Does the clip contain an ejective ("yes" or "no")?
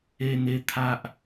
no